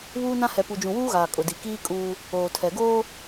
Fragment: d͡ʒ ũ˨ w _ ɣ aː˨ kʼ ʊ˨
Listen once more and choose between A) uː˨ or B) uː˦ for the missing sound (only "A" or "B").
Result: B